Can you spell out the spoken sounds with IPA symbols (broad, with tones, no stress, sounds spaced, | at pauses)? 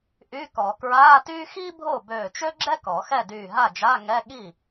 ʔ y˧˥˧ k ɔ˨˩˦ k ɹ aː˧˥˧ t yː˥ x i˥ bʱ o˥˩ b øː˧˩ t͡ʃ ø˥ ɡ͡ǁ ɛ˥ k ɔ˨˩˦ x ɛ˥˩ d yː˧˩ ɦ a˥˩ d͡ʒ a˧˥˧ ŋ ɛ˧˥˧ ɠ i˥˩